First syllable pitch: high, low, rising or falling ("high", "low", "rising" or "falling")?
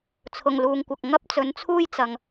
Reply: low